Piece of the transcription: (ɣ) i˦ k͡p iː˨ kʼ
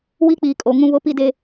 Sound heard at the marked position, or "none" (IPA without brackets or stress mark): w